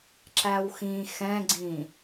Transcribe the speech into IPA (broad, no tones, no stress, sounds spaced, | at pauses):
ǁ æ w x ĩ x ɛ̃ ɡ͡ǀ ĩ